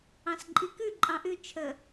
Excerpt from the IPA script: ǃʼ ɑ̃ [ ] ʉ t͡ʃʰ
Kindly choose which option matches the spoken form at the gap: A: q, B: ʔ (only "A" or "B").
B